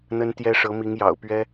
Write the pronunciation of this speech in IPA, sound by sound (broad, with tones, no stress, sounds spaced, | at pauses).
n̪ ə˥ n t̪ j ɛ˥ ʂ ɤ˧˥ m i˧˥ ŋ j ɑ̰˨˩ ʊ̯ p ɥ ɛ˥